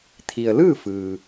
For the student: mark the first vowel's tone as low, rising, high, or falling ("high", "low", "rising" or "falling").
low